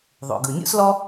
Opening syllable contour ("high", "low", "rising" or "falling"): low